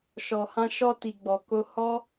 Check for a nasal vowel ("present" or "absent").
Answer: present